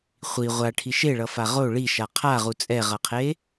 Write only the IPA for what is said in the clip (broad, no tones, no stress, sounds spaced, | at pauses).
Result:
χʷ i ʁʷ a ʈʰ i ʃ e ɭ ʌ f a ʁ o ɭ i ʃ a qʰ a ʁ u t͡sʼ ɛ ʁ ʌ qʰ e